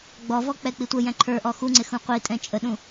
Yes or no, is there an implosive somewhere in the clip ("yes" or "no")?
yes